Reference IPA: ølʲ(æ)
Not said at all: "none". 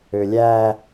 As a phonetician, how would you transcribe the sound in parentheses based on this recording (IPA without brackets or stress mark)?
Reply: æ